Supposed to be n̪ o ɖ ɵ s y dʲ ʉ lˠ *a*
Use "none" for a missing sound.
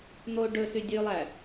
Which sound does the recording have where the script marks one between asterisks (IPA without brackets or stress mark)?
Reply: æ